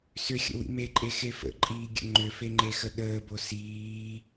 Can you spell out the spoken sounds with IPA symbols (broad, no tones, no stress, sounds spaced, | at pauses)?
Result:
s ʏ xʲ ə̰ w ḭ m e ǃʼ e x e f ə̰ ǃʼ iː ɡʲ ə̰ ŋ͡ǃ ʏ f e ŋ͡ǃ e x ə ɗ əː b o s iː